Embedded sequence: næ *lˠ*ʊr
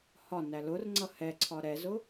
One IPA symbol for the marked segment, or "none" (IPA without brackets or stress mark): l